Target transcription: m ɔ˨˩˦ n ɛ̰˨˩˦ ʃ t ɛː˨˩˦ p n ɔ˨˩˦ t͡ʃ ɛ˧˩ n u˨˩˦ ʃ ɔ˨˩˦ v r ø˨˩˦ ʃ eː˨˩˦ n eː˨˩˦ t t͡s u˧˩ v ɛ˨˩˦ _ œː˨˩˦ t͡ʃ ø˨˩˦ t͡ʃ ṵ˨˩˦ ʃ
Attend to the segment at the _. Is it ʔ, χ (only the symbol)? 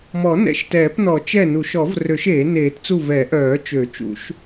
ʔ